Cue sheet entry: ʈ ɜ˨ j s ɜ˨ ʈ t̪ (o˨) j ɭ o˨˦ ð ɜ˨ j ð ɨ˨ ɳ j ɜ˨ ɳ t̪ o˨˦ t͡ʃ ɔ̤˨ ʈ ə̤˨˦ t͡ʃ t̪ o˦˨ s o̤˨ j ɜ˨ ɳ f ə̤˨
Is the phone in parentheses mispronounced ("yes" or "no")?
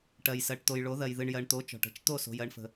no